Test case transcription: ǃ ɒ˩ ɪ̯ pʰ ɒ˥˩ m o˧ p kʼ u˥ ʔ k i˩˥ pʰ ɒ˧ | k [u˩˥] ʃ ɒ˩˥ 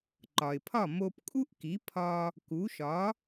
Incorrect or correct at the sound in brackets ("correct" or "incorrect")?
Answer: correct